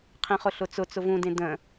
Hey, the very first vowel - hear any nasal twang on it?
yes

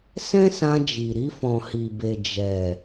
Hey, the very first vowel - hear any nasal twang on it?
yes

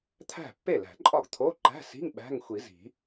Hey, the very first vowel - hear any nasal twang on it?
no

